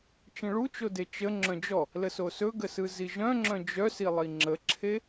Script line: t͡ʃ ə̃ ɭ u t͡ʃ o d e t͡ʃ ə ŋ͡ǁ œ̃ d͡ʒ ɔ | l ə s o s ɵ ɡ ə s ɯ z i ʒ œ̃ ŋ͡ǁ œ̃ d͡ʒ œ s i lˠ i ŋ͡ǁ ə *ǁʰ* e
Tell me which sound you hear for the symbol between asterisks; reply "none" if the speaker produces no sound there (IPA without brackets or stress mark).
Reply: ǁʰ